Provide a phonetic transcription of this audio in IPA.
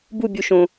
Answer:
b u bʲ u ʃ õ

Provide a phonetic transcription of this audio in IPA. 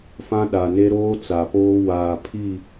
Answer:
f ã˦ ɗ a˨ n e˦ ɾ oː˦ t͡s a˨ p oː˦ w aː˨ pʰ i˦˨

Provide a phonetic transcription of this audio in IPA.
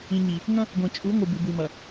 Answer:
ĩ˨ ɲ i˨ | ŋ ɐ̃˦ | ɡʷ ẽ˨ t͡ʃʼ u˨˦ ŋʷ ɨ˨ b ʉ˨ b ʉ˨ m ɐ˨

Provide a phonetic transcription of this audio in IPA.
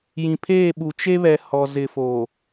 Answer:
j ĩ˨ pʰ eː˦˨ ɓ u˨ t͡ʃ e˦ β ɛ˨ h ɔ˨ z ɪ˨ f oː˨

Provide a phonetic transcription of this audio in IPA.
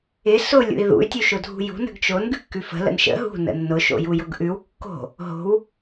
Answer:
ɪ s ʊ lʲ ṵ i̯ ð ṵ y̯ tʲ u ʃ ʊ dʱ ṳ j ṳ n ə̤ ɡ t͡ʃ o n ɡ ʉ kː ʉ f ə̤ l ə̰ n ʃ ə̰ ɦ ṳ n ə̰ nː ʊ ʃ o̰ j u j ʊ ɡ ʔ ʉ w kː o̤ | ɦ o̤ w

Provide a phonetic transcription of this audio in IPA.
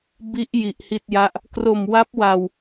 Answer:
b i˦˥ ʔ j i˨˩ ʔ h i˥˩ t̚ j a˥˩ ʔ | k r o˨˩ m w a˦˥ p̚ w a˧ w

